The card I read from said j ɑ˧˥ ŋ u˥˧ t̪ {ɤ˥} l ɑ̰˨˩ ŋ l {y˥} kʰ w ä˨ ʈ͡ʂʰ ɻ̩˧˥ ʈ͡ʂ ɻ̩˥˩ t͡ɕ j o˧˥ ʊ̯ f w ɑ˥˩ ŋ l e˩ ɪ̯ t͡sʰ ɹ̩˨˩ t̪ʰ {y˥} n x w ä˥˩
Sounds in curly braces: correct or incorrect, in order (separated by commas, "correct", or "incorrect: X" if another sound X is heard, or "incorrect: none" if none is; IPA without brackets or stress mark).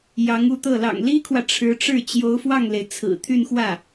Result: incorrect: ɤ˥˩, incorrect: i˥, incorrect: y˥˧